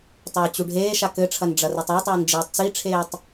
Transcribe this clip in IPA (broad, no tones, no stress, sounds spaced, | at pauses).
tˤ ɘː t͡ɕ u ɖʱ eː ʃ a k ɘ ʈ͡ʂʰ ɐ n ɖ͡ʐ ɐ r e tˤ a tˤ ɐː n d͡ʒ iː tˤ t͡s i ʈ͡ʂʰ eː tˤ